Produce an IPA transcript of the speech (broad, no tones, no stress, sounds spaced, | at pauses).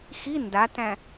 x i n d a t æ̃